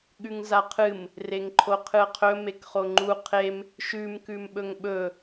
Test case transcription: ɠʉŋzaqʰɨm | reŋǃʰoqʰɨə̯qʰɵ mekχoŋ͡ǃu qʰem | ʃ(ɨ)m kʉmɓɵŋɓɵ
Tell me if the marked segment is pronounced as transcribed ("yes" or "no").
no